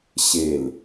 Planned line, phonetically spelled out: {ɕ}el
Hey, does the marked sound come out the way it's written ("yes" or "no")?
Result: yes